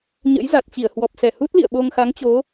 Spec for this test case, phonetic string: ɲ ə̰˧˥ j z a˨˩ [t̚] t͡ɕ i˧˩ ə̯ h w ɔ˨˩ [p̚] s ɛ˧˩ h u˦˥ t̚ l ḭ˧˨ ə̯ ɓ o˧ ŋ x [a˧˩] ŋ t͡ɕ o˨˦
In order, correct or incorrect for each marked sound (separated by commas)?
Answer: correct, correct, incorrect